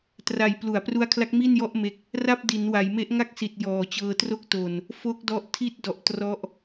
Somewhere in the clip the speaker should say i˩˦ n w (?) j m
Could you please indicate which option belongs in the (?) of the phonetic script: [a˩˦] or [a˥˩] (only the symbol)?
a˩˦